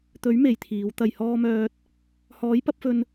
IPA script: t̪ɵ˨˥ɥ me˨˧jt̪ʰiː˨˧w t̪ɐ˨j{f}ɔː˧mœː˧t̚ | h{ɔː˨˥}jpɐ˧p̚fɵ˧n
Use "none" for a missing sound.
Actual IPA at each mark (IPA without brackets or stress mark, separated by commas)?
h, ɔː˨˥